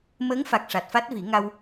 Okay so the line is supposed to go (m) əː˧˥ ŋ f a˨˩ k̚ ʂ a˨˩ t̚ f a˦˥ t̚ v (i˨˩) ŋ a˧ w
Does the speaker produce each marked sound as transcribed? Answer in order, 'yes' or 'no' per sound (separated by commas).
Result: yes, no